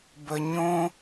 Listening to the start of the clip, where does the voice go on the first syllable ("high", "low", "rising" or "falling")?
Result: low